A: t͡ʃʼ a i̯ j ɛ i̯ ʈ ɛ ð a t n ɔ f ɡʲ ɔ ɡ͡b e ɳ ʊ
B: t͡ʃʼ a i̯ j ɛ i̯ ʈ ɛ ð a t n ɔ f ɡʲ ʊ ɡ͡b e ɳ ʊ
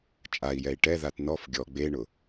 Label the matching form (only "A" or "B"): A